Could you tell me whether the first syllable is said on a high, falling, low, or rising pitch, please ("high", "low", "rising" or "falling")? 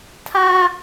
high